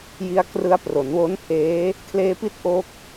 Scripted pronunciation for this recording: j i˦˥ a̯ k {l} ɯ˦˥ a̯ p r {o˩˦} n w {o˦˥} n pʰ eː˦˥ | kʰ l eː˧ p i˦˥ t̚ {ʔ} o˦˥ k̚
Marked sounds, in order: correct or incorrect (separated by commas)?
incorrect, correct, correct, correct